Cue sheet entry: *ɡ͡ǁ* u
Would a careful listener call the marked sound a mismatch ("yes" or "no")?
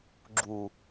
no